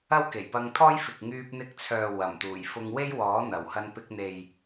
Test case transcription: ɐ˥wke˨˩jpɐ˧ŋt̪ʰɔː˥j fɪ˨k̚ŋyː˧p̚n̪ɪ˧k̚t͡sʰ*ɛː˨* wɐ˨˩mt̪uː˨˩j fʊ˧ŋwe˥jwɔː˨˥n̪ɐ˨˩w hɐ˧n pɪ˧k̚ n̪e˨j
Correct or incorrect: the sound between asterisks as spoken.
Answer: incorrect: œː˨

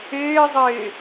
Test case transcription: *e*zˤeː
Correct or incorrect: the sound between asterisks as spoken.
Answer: incorrect: eː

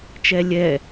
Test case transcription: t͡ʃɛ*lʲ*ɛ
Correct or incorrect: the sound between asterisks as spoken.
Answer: correct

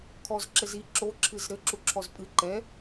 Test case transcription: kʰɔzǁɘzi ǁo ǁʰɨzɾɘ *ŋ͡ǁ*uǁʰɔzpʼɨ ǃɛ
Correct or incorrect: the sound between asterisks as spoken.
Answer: incorrect: ǁ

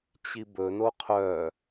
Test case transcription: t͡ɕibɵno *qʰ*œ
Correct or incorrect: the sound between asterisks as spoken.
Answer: correct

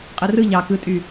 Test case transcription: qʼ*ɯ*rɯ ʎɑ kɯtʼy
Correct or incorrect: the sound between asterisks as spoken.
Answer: correct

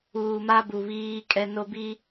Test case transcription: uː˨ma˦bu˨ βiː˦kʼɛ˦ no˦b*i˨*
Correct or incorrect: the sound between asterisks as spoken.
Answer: incorrect: i˦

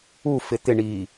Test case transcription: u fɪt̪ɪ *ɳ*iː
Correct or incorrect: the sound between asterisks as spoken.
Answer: correct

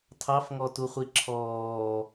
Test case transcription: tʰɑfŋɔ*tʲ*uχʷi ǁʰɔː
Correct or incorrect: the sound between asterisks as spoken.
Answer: incorrect: t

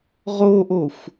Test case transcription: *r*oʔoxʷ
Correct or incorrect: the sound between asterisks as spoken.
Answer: incorrect: ʁ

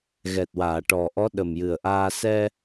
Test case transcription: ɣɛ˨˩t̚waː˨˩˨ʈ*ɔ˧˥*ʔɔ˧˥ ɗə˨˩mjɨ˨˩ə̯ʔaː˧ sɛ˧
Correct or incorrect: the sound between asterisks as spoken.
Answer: incorrect: ɔ˨˩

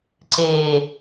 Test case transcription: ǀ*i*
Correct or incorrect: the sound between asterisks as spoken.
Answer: incorrect: e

